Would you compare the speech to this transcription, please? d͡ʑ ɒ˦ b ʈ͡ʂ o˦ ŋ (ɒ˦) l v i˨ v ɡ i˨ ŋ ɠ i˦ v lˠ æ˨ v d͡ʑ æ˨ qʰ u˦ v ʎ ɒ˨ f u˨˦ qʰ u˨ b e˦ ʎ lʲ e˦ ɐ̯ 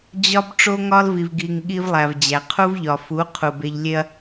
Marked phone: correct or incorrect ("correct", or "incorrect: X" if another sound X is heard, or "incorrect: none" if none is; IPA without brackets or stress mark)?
correct